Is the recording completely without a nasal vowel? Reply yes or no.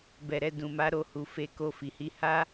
no